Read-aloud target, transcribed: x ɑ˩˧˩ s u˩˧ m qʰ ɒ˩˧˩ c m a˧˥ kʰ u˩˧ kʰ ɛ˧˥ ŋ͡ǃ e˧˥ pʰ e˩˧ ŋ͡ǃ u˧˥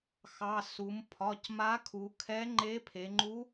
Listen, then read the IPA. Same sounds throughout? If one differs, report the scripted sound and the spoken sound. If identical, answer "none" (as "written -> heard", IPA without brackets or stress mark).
qʰ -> pʰ